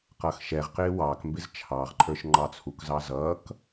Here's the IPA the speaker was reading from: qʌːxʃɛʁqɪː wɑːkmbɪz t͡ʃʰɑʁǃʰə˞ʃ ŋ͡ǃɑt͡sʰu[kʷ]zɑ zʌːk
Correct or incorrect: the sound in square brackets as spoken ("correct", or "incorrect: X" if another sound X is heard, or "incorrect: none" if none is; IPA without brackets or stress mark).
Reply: incorrect: k